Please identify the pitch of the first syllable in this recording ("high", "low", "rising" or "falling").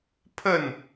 falling